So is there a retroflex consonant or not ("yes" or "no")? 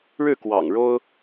yes